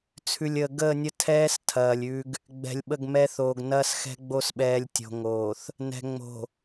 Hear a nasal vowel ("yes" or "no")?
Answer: no